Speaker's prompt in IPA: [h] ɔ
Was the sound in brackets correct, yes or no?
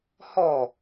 yes